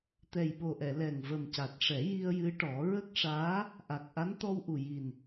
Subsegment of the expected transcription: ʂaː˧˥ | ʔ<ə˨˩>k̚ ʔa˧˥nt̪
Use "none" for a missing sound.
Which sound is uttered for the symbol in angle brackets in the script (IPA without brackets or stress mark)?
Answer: a˨˩